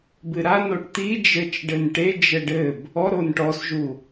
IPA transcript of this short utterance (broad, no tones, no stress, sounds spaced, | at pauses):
b ɨ ɾ a n o ʈ t̪ i d͡ʒ ɘ t͡ʃ ɖ ɘ n ʈ e d͡ʒ ɘ ɖ ɘ b | ɔ ɾ o n ʈ ɔ s ʒ u